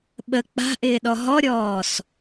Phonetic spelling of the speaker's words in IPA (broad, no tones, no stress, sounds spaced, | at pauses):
ɓ ə k͡p a̤ ʔ ɪː ɗ ɔ ɦ ɔ ɾʲ ɔː s